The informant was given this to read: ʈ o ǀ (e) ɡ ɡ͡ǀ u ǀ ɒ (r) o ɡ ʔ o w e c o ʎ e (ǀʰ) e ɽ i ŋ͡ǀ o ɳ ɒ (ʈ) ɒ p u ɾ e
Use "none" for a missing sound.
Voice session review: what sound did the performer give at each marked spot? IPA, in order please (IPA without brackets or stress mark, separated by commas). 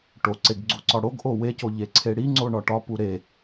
e, ɽ, ǀʰ, ʈ